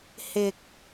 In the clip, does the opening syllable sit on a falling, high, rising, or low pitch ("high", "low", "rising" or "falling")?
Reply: low